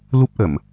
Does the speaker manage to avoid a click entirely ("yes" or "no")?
yes